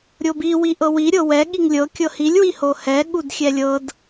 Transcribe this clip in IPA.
ɾʲ o b i w i ʔ ɤ w i ɾʲ ɤ w ɛ ɠ i ŋ lʲ ɤ kʲ ɤ h i lʲ w i h o h ɛ ɠ u d xʲ ɛ lʲ ɤ d

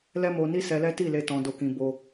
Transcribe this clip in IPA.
l ɛ˦ m o˧ n i˦ s ɛ˧ l ɛ˦ t i˦˨ l e˧ t ɔ̃˧ d o˧ k ĩ˧ b o˦

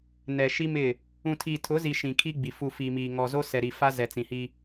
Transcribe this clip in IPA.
n ɛ˨ ʃ i˦ m ɪ˦˨ | ũ˨ tʰ iː˨ tʰ ʊ˨˦ z i˨ ʃ ĩ˨ kʰ i˦ ɡ͡b i˨ f u˨ f i˨ m iː˨ ŋ ɔ˨ z o˦ s ɛ˨ ɾ i˨ f a˦ z ɛ˨ t͡s ĩ˨ h i˦

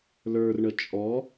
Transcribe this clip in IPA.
l ə˞ r ɳ ə t͡ʃʼ ɔ

